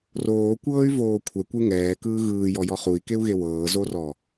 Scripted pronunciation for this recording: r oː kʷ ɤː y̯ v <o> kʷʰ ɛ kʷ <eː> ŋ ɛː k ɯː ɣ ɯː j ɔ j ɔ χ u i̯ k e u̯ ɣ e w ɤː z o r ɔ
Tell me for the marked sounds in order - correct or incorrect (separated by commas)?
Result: incorrect, incorrect